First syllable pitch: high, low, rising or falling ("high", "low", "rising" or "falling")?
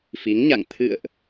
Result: rising